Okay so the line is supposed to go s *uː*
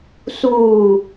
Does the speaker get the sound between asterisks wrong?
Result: no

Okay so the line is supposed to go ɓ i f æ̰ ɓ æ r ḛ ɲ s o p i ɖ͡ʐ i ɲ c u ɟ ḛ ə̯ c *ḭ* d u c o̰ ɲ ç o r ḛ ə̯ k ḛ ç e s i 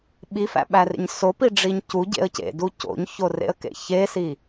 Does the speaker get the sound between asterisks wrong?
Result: yes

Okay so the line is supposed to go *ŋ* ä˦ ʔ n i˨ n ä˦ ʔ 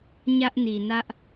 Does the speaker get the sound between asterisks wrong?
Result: yes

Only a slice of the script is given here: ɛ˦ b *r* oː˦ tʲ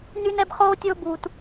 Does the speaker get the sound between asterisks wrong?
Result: yes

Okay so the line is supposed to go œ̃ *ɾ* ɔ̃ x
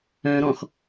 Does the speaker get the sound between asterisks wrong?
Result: no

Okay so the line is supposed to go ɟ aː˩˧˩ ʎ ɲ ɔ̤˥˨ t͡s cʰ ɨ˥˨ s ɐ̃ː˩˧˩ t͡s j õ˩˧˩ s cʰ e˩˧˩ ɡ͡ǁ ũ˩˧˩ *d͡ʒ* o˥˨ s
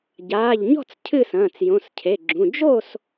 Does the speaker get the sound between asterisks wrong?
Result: no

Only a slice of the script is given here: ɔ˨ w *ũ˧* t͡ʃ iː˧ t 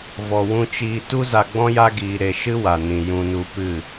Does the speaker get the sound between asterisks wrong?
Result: no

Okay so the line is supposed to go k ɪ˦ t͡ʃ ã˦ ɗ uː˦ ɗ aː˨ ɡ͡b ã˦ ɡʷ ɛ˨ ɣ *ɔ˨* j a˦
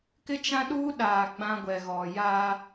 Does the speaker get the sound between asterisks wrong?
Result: no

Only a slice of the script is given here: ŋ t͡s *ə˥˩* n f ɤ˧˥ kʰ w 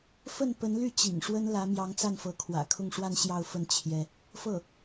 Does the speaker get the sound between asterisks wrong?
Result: yes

